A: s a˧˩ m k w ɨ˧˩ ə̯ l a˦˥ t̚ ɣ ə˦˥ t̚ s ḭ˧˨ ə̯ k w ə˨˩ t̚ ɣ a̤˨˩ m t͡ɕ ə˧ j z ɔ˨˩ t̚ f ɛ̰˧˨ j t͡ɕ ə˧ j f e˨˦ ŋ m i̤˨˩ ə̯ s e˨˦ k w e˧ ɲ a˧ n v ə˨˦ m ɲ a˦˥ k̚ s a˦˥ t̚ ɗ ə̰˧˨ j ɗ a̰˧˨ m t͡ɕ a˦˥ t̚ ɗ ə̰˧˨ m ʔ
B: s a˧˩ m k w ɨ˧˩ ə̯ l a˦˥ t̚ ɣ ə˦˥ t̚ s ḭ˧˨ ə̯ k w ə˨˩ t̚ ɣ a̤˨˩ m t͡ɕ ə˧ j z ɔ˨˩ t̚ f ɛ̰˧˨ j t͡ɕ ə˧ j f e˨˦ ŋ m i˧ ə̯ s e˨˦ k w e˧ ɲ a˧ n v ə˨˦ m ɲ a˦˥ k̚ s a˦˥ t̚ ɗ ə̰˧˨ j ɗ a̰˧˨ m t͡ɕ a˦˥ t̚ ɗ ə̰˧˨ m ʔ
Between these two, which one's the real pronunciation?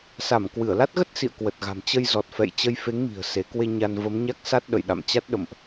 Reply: A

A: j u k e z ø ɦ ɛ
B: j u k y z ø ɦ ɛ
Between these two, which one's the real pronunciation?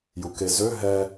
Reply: A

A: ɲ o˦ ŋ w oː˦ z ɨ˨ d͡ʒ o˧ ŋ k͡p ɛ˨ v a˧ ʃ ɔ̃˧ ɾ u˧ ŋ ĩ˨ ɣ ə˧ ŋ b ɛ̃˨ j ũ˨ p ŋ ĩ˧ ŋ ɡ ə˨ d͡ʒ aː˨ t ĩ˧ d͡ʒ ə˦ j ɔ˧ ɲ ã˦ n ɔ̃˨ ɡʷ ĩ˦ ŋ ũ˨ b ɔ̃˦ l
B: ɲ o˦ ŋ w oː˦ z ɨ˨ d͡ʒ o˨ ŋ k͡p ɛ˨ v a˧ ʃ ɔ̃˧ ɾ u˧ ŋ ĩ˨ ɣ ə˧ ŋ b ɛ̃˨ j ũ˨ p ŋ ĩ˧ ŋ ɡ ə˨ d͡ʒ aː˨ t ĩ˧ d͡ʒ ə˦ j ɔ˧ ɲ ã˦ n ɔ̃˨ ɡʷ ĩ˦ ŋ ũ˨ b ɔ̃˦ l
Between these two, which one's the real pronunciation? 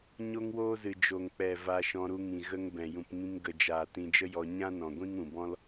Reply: B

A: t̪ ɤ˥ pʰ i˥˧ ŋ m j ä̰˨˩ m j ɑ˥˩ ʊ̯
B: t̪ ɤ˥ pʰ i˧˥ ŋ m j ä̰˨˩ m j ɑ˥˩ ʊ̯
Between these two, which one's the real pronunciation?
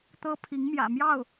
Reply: B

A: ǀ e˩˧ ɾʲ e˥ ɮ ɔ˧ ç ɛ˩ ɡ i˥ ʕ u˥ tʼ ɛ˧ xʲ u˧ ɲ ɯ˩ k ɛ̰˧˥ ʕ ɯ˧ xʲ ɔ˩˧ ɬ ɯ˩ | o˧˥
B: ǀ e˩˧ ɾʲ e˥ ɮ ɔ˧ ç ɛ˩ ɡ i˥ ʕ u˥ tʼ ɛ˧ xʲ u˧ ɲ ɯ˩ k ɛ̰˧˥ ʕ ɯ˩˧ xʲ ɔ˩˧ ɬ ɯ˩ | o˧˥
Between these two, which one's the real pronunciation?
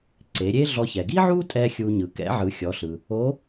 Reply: B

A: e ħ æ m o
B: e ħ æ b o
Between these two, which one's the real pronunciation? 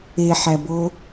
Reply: B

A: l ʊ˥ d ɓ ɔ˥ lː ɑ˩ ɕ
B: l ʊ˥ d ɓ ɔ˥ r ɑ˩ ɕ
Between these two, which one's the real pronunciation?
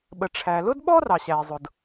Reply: B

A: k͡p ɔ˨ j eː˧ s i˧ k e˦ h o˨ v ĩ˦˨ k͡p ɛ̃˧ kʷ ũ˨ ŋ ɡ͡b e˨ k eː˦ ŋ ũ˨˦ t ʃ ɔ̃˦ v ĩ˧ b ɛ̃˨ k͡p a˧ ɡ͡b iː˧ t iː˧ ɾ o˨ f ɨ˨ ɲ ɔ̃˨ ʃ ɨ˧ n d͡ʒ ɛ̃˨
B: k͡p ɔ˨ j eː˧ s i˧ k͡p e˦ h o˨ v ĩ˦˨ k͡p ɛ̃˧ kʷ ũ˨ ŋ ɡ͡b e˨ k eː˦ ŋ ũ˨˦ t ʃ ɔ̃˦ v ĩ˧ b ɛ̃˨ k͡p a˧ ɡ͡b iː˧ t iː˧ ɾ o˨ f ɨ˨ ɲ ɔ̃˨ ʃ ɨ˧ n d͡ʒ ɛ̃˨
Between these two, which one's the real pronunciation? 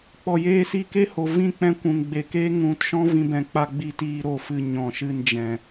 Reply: A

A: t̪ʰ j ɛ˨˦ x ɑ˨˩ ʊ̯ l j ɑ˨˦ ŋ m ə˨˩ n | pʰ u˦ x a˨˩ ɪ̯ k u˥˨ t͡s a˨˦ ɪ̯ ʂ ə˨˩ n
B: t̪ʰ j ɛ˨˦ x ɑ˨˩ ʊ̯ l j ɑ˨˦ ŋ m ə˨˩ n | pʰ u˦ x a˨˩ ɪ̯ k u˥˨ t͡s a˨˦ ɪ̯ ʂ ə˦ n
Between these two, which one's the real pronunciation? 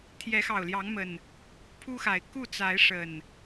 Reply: A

